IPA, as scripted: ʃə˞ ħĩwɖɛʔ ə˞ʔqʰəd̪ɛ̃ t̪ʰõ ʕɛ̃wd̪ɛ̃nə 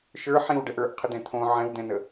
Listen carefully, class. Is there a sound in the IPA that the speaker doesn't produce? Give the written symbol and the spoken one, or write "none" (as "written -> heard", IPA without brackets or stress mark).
none